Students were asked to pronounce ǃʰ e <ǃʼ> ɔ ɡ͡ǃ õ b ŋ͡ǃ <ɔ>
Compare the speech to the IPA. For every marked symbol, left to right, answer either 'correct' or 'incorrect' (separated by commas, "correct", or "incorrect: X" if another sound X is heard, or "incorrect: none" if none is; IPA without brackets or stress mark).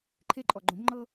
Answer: correct, incorrect: ɤ